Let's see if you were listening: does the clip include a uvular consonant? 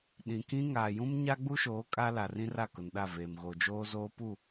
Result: no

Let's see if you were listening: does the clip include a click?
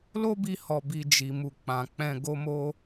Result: no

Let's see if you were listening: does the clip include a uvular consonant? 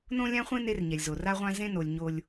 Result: yes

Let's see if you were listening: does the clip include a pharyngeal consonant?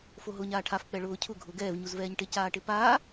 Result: no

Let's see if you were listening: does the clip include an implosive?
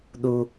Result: yes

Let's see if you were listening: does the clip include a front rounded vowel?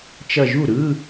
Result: no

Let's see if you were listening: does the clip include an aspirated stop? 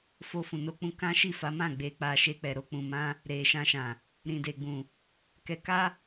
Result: no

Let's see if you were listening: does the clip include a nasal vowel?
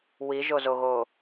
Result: no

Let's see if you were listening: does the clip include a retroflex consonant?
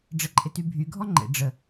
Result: yes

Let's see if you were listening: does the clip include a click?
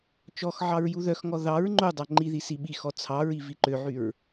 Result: yes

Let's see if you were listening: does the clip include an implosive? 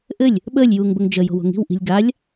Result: yes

